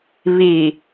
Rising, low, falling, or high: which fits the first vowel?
low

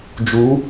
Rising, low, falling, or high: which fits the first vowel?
rising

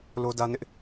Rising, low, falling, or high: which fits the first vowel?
high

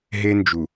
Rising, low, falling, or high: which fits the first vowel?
high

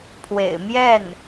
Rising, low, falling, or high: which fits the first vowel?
low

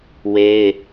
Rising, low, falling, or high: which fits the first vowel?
high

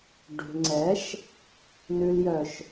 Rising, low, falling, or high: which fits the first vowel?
low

